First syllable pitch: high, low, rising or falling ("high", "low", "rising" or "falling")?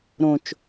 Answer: low